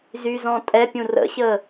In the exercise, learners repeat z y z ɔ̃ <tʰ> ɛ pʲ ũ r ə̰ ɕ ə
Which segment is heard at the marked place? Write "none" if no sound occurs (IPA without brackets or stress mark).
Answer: tʼ